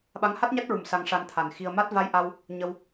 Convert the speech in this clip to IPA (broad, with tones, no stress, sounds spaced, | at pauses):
ɓ a˧˥ ŋ h a˦˥ t̚ ɲ a˦˥ t̚ ɹ u˨˩ m s a˧ ŋ ʂ a˧ n t̪ʰ a˨˩ n x i˧ ə̯ m a˦˥ t̚ v a˧ j ʔ a˧ w | ɲ ə˧ w